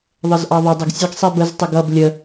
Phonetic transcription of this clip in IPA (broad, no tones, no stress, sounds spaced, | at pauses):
ðˤ ə z ʔ ɑ ðˤ ɪ dˤ ɪ ɡ sʲ ə ɡ sˤ i b ə z tˤ ɪ ɡ ʌ b lʲ ə